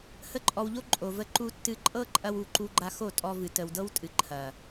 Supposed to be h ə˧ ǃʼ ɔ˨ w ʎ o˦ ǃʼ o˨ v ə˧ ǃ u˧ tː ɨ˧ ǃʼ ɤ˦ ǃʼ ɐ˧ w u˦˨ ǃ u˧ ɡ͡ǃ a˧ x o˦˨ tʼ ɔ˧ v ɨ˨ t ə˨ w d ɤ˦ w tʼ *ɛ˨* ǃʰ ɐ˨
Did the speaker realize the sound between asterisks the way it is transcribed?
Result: no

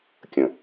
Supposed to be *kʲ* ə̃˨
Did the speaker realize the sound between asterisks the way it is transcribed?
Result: yes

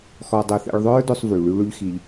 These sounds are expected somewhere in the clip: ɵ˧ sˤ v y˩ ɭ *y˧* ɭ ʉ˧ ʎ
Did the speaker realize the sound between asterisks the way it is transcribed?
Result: yes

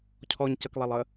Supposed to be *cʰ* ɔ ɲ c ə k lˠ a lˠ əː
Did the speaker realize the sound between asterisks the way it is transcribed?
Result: yes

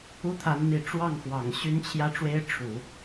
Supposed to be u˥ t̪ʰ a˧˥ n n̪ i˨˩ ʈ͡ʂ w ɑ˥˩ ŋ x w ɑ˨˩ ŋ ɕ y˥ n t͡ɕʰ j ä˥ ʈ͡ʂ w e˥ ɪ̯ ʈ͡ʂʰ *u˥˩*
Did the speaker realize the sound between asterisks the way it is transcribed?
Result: no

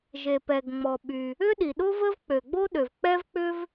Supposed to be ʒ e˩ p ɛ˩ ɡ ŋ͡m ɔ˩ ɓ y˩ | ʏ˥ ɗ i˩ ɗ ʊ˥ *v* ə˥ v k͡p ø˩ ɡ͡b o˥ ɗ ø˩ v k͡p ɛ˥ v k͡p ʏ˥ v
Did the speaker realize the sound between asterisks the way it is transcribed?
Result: yes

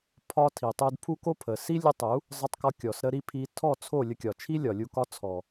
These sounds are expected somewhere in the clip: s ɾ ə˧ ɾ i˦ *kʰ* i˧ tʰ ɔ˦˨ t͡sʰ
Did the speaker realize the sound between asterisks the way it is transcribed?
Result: no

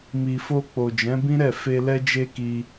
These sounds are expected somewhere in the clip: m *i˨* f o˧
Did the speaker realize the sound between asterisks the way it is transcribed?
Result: yes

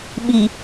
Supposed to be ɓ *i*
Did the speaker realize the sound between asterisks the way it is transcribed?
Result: yes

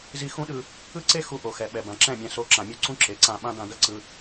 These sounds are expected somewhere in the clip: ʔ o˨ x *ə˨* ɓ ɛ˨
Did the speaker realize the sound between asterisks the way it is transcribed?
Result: no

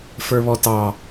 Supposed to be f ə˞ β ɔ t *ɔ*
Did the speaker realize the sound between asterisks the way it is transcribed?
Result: no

